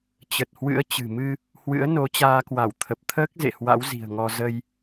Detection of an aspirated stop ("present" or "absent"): present